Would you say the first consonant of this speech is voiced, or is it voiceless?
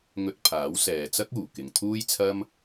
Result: voiced